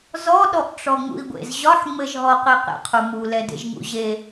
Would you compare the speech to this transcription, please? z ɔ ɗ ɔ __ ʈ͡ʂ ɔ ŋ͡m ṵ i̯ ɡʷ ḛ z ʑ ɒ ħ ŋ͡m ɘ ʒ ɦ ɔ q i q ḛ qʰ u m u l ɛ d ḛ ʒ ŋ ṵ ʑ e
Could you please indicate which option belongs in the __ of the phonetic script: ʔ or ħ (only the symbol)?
ʔ